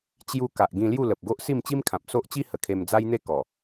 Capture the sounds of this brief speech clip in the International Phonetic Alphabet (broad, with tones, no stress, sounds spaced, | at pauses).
t͡ɕ j u˧ k a˨ ʔ ɡ ĩ˧ l j u˥˧ l ə˨ p̚ ɡ o˦ ʔ s i˥˧ m t͡ɕ i˦ m kʰ ã˨ p̚ s o˦ ʔ t͡ɕ i˦ h ə˨˩ kʰ e˧ m d͡z a˦ j n̪ e˥˧ k ɔ˨˩